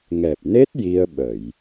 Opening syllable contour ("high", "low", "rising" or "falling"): low